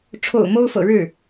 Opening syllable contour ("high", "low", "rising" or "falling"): low